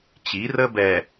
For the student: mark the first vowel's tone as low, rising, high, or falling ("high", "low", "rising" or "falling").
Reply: rising